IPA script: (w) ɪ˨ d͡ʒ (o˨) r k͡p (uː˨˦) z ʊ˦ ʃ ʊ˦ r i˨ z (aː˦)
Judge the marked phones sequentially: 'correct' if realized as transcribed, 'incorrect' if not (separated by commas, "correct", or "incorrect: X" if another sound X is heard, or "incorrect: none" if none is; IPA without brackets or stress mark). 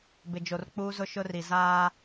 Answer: incorrect: b, correct, incorrect: uː˦, correct